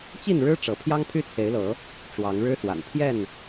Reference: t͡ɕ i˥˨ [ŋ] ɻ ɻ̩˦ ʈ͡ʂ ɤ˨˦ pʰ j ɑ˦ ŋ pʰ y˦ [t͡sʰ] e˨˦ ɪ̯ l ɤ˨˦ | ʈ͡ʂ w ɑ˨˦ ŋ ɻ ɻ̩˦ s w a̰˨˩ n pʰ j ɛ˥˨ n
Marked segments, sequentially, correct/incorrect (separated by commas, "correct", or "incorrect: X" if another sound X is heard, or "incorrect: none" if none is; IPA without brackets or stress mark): incorrect: n, correct